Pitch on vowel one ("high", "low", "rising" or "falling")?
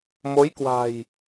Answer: rising